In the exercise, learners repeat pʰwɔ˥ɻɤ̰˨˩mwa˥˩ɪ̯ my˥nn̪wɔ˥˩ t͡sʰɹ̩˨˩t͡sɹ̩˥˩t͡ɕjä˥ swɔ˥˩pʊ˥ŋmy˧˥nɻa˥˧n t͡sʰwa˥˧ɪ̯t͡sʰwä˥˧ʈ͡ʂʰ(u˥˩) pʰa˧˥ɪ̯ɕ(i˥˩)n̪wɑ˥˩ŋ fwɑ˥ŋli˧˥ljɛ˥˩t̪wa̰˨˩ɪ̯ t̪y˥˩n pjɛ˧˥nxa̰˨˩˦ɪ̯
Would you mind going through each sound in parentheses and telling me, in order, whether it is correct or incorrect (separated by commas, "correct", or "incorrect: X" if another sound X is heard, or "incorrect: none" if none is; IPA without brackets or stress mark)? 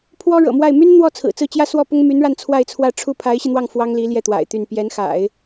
correct, incorrect: i˧